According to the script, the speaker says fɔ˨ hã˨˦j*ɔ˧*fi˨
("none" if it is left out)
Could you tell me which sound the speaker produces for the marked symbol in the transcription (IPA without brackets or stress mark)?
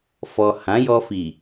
ɔ˧